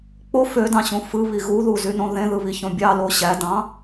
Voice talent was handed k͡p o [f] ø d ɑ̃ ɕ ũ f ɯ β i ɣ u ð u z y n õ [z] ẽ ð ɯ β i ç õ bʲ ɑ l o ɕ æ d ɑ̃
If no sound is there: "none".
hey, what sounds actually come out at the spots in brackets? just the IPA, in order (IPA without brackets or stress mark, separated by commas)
f, ð